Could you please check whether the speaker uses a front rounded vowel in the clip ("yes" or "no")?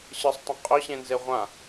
yes